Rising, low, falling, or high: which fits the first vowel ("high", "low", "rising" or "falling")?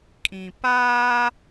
low